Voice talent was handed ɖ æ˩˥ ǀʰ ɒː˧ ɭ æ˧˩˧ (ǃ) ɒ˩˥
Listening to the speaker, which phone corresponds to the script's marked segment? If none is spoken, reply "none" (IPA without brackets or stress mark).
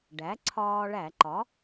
ǃ